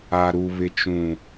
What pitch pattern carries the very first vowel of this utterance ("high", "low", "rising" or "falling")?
low